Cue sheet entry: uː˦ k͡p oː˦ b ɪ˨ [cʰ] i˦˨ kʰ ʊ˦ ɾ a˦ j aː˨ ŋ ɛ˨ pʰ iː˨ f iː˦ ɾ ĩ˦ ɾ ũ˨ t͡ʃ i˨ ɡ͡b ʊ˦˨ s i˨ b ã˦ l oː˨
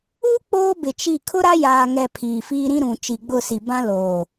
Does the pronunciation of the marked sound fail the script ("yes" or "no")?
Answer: yes